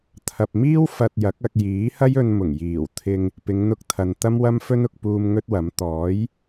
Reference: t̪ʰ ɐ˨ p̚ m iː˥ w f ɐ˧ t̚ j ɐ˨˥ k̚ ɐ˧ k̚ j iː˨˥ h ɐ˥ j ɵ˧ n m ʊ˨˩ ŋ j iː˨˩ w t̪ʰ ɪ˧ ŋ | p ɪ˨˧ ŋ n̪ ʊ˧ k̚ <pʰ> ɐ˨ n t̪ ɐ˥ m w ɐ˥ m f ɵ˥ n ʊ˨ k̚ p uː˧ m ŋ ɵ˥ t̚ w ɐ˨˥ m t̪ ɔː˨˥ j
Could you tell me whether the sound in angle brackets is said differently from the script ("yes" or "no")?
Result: yes